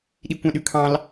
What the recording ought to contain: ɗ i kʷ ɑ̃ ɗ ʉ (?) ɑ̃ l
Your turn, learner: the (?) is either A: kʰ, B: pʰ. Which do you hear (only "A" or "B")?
A